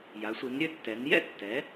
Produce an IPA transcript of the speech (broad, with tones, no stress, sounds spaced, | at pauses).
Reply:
j a˩˧ sʷ i˩˧ n ɾʲ ø˦ tː ɛ˩˧ n j ɛ̰˥˩ tː ɛ˩˧